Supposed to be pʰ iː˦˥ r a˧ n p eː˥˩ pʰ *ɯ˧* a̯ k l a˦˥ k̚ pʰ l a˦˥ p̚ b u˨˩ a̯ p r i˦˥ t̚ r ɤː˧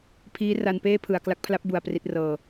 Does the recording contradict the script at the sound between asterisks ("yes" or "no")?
yes